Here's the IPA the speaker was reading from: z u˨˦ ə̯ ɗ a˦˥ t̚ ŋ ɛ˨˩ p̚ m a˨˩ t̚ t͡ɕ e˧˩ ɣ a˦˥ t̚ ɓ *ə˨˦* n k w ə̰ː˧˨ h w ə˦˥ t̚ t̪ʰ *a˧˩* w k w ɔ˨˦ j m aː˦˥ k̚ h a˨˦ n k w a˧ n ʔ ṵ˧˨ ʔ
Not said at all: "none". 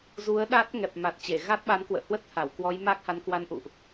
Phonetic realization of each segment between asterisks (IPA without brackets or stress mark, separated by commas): a˨˦, a˧˩